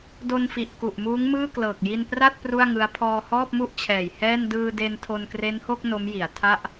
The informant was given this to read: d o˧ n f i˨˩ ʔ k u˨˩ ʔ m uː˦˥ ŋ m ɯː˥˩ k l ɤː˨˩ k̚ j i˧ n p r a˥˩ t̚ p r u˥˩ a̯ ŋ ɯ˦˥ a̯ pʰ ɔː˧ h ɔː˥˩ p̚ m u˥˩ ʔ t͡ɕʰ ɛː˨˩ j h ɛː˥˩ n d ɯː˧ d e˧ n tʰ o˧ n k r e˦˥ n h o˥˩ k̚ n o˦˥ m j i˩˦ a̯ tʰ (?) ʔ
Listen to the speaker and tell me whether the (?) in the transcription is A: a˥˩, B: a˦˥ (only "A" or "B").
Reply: A